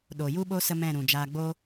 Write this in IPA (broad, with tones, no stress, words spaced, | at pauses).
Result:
ɗo˨ju˦ɓo˦ sə˦mɛ̃˦˨ɾũ˨ d͡ʒaː˧ ɡ͡boː˦